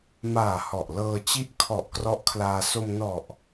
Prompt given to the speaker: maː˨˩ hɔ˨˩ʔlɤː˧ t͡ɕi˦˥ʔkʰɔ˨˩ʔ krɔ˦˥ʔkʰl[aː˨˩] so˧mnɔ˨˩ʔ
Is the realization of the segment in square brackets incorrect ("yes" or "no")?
yes